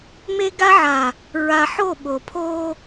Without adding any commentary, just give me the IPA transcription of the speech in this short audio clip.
m e˦ ɡ a˦ ʕ a˨ | ɹ a˨ ħ o˦˨ ɓ o˨ pʰ o˦

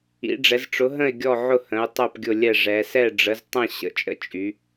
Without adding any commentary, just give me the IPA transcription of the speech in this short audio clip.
ḭ˨˥ ɖ͡ʐ ɛ˨˥ z ʈ͡ʂ ʊ˨˥ ɦ ə̃˥˨ ɪ̯ ɡʲ ɔ˥˨ ʕ ʊ˥˨ h ə̃˨˥ ʊ̯ tˤ œ˥˨ p ɡʲ ʊ˥˨ lʲ ɛ˥˨ ʐ ɛ˨˥ s ɛ˥˨ ɖ͡ʐ ə˨˥ z tˤ ə̃˥˨ ɕ ə̰˨˥ t͡ʃʼ ə̰˥˨ t͡ʃʼ y˨˥

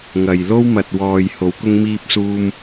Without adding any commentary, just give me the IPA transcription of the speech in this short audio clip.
ŋ ɐ˨ j l o˥ w m ɐ˨ t̚ w ɔː˨ j h o˨˧ w k ʊ˧ ŋ m iː˧ p̚ s uː˧ m

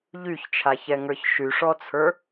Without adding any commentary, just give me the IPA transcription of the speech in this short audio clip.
ʎ y ç t͡ʃʰ a ç ɛ ŋ ə˞ ç ʃ y ʂ ɔ t͡sʰ ə˞

